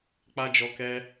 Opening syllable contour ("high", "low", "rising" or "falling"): high